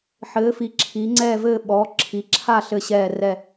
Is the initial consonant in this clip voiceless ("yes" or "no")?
yes